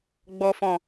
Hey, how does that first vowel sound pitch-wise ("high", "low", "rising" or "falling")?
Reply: low